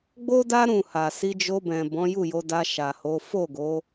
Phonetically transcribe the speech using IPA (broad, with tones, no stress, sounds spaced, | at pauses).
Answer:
ɡ͡b o˦ d a˦ ɾ ũ˦˨ h a˨ s i˧ d͡ʒ o˧ b ɛ̃˨ b ɔ̃˨˦ j u˦˨ j o˧ d a˧ ʃ a˨ h o˨˦ f o˦˨ ɡ o˨˦